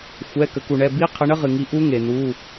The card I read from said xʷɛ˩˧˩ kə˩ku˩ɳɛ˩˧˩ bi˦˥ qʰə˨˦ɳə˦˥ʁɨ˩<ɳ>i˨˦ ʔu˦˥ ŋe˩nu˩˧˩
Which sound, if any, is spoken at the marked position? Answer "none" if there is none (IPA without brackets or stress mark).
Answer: ŋ